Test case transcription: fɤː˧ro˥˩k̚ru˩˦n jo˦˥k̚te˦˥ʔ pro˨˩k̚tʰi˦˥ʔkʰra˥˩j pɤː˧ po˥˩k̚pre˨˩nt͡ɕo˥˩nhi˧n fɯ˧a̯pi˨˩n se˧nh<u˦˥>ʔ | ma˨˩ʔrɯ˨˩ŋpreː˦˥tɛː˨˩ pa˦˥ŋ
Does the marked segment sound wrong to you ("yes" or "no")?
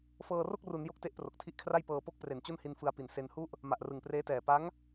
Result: yes